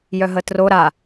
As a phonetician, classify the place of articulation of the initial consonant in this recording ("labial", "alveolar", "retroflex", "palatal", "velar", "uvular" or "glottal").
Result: palatal